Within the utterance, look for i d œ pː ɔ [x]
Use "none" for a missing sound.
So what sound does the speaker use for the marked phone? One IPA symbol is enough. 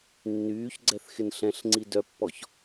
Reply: ç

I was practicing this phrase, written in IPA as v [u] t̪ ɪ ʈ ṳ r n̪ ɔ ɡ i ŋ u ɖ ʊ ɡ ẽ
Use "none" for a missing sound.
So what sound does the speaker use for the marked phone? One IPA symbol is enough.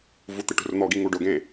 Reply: u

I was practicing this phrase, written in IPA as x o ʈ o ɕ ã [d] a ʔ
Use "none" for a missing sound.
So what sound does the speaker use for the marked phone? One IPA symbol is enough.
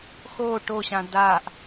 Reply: d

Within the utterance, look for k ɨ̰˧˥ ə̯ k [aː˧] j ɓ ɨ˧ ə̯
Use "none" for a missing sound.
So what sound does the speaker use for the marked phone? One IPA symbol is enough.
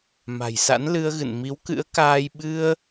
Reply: aː˧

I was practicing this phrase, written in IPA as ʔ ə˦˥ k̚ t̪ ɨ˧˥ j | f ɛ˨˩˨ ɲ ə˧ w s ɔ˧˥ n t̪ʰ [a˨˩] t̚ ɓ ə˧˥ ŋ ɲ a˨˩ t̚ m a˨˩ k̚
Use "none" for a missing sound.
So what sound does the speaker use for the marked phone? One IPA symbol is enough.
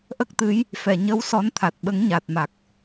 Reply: a˨˩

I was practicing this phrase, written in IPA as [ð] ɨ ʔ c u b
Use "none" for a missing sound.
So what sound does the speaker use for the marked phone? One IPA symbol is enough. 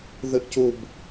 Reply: ð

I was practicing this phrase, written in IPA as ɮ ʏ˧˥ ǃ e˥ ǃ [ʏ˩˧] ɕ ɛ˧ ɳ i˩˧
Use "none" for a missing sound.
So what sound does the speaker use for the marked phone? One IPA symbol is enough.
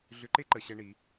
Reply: ə˩˧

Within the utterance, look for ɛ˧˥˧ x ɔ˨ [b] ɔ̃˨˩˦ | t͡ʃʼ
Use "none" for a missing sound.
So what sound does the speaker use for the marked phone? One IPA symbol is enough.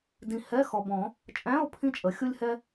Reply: b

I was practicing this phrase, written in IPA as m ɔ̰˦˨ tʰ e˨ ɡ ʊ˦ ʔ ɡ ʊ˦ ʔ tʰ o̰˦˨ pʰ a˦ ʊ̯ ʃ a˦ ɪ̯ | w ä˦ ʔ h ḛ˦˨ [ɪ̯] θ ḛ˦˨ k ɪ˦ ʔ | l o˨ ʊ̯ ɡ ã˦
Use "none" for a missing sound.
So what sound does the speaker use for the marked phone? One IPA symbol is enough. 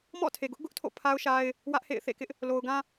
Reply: ɪ̯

